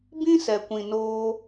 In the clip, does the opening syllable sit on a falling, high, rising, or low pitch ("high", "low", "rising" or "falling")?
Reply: high